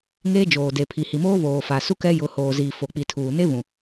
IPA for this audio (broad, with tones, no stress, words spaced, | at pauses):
ŋeː˦d͡ʒoː˨de˨ pʰi˨hi˨moː˦βoː˨ fa˨su˦ kɛ˦jʊ˨˦ hoː˨ziː˨ fo˨k͡pi˨tʰuː˨ ne˦βũ˨